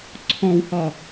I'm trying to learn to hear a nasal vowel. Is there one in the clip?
yes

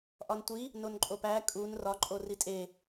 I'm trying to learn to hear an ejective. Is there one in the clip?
yes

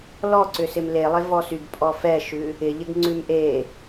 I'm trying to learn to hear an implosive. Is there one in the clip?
no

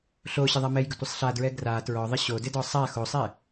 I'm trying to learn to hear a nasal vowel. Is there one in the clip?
no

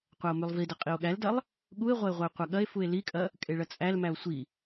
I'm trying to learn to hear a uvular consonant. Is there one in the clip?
yes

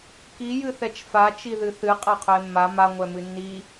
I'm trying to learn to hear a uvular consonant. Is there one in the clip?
yes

